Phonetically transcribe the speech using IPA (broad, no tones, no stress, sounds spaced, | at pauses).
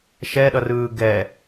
ʃ ɛ ɗ ʌ r ɯː ɡ ɛ